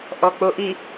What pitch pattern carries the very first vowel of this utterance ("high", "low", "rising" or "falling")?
low